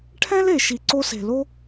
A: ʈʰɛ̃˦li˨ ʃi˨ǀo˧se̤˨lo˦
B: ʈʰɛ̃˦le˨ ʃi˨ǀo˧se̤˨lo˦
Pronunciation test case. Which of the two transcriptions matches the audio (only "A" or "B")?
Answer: B